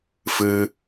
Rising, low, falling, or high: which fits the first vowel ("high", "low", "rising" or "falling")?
high